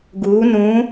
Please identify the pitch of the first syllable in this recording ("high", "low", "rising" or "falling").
rising